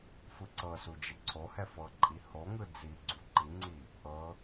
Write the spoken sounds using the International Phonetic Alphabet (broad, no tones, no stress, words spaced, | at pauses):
fɯǀɤsu d͡ʒeǀʰohɛ fɤǃʼi hoŋɯ d͡zi ɡ͡ǀuǃiŋ͡ǀi | ʔɤ